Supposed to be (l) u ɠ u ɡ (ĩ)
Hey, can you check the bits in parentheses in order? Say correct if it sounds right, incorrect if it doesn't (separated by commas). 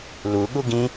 correct, correct